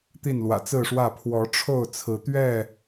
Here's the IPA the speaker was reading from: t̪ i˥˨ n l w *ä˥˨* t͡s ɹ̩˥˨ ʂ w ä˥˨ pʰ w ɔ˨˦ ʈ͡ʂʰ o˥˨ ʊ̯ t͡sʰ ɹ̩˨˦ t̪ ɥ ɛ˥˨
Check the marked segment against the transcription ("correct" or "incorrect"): incorrect